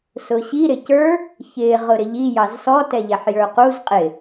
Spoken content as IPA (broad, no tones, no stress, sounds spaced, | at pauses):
s ʊ ɕ i ɾ ɪ c ə˞ | ç ɪ ʁ ʊ ɾ ɪ ʎ i j ɑ z s ɔ t ɛ ʎ ɛ ħ j ə˞ q u z qʼ ɪ